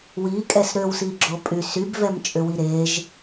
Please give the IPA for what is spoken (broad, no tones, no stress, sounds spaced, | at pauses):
w i kʼ ɛ s ɾ ø w s i ɡ͡ǁ o pʼ y s y b v ɛ m t͡ʃʼ ʏ w i ɾ e ʒ